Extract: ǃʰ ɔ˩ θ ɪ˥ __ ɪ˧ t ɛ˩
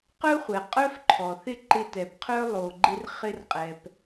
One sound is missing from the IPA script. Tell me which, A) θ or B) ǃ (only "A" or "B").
B